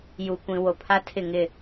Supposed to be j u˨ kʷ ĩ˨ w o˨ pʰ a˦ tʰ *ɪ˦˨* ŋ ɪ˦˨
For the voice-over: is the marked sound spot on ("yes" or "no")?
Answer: yes